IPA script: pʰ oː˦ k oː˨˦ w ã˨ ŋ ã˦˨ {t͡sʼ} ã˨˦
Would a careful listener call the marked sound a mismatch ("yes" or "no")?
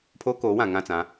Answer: yes